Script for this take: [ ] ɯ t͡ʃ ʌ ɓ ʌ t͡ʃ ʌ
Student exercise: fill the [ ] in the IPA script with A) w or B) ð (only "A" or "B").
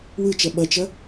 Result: A